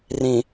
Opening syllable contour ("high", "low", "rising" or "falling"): low